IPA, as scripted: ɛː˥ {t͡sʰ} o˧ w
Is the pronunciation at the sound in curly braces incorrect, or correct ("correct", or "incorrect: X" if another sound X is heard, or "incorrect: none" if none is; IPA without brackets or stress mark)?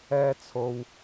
correct